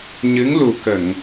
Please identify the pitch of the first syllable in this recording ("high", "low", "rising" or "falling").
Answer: rising